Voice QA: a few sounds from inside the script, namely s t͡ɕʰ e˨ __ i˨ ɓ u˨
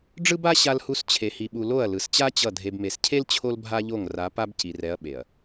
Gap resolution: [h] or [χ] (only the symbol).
h